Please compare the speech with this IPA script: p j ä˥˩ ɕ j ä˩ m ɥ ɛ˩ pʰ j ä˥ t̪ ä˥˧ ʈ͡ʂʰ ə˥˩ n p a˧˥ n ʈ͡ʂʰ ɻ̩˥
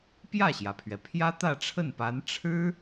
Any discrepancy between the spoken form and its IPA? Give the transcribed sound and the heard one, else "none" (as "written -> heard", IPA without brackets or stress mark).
m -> pʰ